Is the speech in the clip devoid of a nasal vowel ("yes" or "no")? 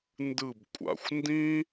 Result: no